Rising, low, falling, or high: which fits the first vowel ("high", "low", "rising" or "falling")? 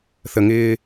low